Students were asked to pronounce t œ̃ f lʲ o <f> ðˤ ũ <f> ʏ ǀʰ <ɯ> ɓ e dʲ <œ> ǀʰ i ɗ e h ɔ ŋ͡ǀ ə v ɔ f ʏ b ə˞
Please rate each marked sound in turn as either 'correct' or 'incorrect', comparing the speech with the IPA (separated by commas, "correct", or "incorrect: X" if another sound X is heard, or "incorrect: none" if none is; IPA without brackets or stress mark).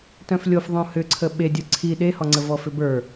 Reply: correct, incorrect: h, incorrect: ə, correct